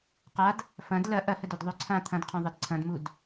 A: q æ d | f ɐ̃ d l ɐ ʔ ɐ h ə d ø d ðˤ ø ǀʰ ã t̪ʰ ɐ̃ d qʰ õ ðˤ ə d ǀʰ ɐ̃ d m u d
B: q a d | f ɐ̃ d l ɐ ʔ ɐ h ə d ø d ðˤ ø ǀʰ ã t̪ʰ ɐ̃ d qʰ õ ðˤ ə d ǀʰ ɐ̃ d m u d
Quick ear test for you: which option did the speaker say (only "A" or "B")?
B